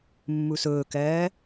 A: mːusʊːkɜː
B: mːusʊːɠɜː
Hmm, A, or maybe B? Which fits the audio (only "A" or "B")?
A